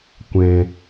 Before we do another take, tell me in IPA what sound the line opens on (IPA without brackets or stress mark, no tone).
kʷ